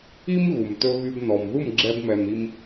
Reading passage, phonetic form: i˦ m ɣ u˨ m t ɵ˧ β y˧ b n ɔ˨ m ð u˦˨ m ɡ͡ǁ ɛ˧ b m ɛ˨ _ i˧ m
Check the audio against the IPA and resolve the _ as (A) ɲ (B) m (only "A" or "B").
B